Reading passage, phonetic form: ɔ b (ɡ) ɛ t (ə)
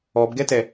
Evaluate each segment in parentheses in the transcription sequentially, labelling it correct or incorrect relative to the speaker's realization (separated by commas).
correct, incorrect